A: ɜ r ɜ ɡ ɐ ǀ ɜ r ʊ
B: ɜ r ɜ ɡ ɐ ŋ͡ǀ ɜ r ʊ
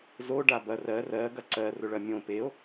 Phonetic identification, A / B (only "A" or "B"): A